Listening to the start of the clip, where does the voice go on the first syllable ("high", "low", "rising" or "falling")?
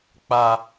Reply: high